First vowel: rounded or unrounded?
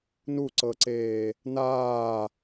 rounded